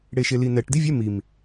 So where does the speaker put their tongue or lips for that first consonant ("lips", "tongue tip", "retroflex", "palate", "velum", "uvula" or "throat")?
retroflex